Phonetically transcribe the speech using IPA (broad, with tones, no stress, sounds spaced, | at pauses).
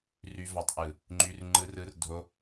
r y˧ v ɑ˨ tˤ ʔ ɯ˨ | ŋ͡ǃ y˧ r ŋ͡ǃ ɯ˧ r ɯ˧ r dʱ o˧